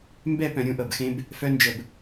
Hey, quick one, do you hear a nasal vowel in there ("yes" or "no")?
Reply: yes